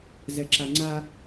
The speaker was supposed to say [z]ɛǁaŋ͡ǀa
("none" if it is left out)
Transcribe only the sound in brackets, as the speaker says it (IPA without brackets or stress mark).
z